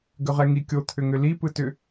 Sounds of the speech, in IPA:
ɡ ʏ ʁ ɛ ŋ i kʲ o t̪ʰ ʏ ŋ ʏ l i p ɯ t ʏ

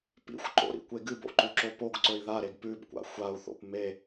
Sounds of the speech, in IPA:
p ḭ xʷ ǃ o̰ ɾ ḭ kʷ e ɡ ɨ b o̰ ǃ ʉ ǁ o p o ɡ ǀ ɵ i̯ ð a ɾ e ɡ p ʉ b kʷ a̰ xʷ a u̯ θ o̰ p m e

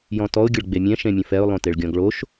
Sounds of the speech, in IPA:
j ɔ̃ t ɔ ʊ̯ ɡʲ ə ɭ ɡ͡b e mʲ ɛ̃ ʃ ẽ mʲ ə̃ f ɛ ʊ̯ lˠ õ t e ɭ ɡʲ ɔ̃ ɡ ɭ o ʃ

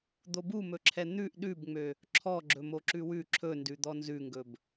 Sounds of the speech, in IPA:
d̪ o b u m ɵ ǁʰ ɛ n̪ ʉ ʔ ɗ ʉ b ŋ͡m ø | ǁʰ ɔ ɡ͡ǁ ɵ m o ǁ ʉ w ʉ ǁʰ ɵ n d ʉ d̪ ɔ n z ʉ ŋ ɡ ɵ b

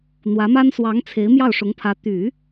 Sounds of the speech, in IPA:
n̪ w ä˧˥ m a˥ n s w ɑ˧˥ ŋ t͡sʰ e˧˥ ɪ̯ m j ɑ˥˩ ʊ̯ ʂ ʊ˧˥ ŋ pʰ ä˧˥ t̪ y˨˩˦

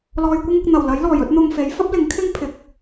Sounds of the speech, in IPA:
l ɔː˧ j kʷ ɪ˥ ŋ ʊ˧ k̚ n̪ ɐ˨˩ w l ɐ˨˥ j l ɔː˨˩ j ɵ˥ t̚ n̪ ʊ˧ ŋ f e˨˥ j f ɐ˥ p̚ l ɪ˨˥ ŋ kʰ ɪ˥ ŋ pʰ ɪ˨ k̚

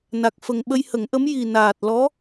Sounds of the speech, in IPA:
n a˨˩ k̚ f ə˨˩ ŋ ɓ ə˧ j h ə˨˩˦ ŋ ʔ ə˧˥ m j i˨˩ n aː˨˩ t̚ l ɔ˧˥

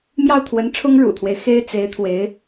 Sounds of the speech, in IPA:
m j ɑ˥˩ ʊ̯ t̪ʰ w ə˧˥ n ʈ͡ʂʰ ʊ˥ ŋ ɻ ṵ˨˩ t̪ʰ w e˦ ɪ̯ x e˥ ɪ̯ t͡s e˧˥ ɪ̯ t̪ʰ w e˧˥ ɪ̯

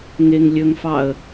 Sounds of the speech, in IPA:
ŋ e ŋ lʲ ɵ ŋ f ɑ ə̯

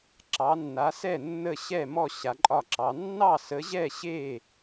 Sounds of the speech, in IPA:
ǁ ɑ˨˦ nː a˨˦ s ɛ˥˨ nː ə˥˨ ɕ ɛ˥˨ m ɔ˥˨ ɕ a˨˦ ǃʼ ɒ˥˨ ǁ ɑ˨˦ nː ɑ˥˨ s ə˨˦ ʑ ɛ˥˨ ɕ e˥˨

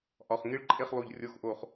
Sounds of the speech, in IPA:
ʔ ɒ˩˧˩ χ ŋ i˥˨ ɭ ǃʼ e˥˨ χ lˠ u˧˩ ʎ rʲ o˧˥˧ x ʔ o˧˩ χ

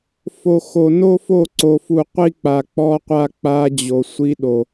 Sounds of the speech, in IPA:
f o˨ x o˨ n o˦ f o˦˨ ǀ o˨ f u˨ qʷ i˦ k͡p a˨ k͡p ɔ˦ qʷ a˦ k͡p a˦ d͡ʑ o˨ sʷ i˦ ɗ o˨

